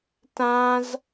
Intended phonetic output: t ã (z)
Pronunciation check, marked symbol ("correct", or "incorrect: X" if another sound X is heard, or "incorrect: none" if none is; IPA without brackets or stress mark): correct